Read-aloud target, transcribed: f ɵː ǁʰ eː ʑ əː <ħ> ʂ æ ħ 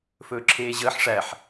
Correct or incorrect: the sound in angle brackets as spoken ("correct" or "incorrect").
correct